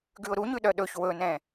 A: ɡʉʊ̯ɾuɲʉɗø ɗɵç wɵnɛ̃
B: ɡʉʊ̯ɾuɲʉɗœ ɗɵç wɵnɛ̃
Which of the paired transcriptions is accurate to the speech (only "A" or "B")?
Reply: B